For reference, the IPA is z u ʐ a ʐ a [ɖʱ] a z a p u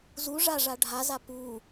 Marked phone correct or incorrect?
correct